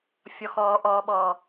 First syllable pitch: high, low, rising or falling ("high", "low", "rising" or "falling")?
low